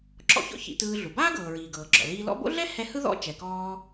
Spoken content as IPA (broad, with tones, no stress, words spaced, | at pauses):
ǁɔ̰˧çɔ̰˥ çḭ˧tɯː˧ɮu˩ baː˥ɡɤː˩ɹiː˩ ɡɤː˩ɡ͡ǁɔ̰˩liː˧lɔ̰˥ bo̰˥ɮɛ˥ hɛ˧ hɯ˥ðɔ̰˥ t͡ʃɛ˩kɔː˧